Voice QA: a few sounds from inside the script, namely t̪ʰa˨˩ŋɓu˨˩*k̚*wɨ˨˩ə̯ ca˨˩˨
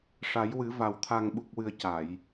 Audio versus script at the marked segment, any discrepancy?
no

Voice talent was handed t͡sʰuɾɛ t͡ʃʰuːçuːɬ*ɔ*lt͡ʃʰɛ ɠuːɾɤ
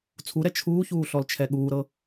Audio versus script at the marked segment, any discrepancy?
no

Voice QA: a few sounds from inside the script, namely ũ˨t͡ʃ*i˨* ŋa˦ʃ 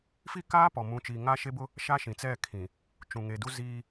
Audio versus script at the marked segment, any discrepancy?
no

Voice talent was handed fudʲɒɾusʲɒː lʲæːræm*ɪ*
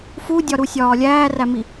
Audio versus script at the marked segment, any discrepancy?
yes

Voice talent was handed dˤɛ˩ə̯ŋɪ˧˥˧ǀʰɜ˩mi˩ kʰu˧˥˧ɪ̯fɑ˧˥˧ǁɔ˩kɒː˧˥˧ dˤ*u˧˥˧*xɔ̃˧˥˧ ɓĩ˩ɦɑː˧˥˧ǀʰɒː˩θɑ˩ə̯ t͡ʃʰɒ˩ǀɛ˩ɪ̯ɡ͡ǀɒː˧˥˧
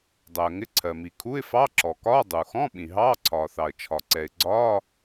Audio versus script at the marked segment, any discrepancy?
yes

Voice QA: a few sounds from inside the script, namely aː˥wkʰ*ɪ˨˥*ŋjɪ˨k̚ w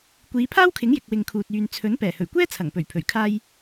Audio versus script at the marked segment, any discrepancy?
no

